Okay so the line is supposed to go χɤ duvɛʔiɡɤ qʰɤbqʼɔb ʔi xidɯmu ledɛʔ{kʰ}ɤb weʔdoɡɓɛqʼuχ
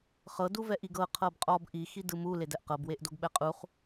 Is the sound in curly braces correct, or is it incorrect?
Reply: incorrect